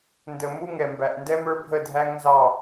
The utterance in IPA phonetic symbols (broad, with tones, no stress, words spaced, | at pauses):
ndə˨mu˦ŋɛ˨mbæ˨ʔ ndɛ˦mə˞˦bʱə˦˨dʱæ˦ŋ nzɑ˦˨